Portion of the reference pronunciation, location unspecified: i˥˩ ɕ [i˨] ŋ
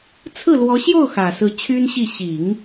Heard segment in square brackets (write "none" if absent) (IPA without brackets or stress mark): i˨˩˦